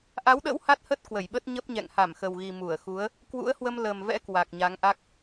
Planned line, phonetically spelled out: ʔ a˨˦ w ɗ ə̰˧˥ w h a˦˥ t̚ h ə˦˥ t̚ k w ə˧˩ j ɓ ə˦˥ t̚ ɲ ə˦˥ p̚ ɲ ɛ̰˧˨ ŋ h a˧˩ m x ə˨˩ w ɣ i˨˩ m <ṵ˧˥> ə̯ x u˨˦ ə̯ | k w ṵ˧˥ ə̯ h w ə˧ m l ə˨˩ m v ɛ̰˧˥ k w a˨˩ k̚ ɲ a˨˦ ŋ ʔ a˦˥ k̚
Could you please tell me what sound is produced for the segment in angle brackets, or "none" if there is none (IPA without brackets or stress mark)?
u˧˩